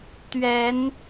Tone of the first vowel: rising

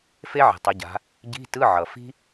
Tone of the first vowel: high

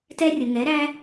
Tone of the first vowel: high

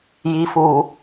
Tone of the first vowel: low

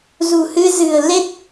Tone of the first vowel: low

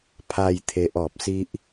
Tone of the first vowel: falling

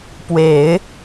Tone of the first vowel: low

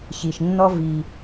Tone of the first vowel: low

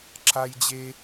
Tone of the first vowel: high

